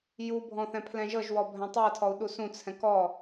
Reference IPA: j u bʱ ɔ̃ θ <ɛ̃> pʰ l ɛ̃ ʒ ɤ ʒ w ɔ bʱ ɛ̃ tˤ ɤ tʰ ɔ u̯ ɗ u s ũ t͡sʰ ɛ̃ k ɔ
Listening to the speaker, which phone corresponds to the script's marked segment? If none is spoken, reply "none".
ɛ̃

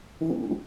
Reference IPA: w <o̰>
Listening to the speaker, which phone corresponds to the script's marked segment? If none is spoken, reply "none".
ṵ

